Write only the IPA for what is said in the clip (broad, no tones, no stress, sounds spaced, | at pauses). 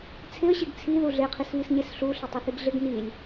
t͡sʰ ɪ ə̯ ɕ i ɡ t͡sʰ i ð u ɮ e qʰ i s β i s ɲ e s ɬ u ɬ ɪ tˤ u θ i ɡ ɮ ɪ ɡ n i lʲ